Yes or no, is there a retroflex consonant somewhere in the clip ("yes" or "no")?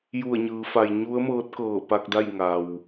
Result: no